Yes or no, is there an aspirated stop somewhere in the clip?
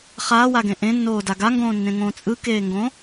no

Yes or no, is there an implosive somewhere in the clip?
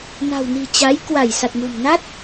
no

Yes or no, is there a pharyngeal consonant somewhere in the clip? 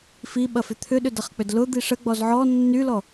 yes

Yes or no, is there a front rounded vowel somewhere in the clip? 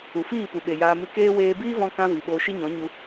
no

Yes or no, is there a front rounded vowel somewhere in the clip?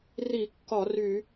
yes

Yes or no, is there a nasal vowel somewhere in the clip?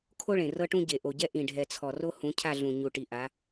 yes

